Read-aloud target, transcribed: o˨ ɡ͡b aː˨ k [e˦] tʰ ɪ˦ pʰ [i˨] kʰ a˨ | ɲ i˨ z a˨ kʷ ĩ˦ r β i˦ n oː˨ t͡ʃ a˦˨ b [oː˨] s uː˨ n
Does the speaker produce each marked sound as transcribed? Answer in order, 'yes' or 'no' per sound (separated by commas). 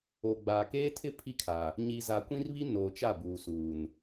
no, no, no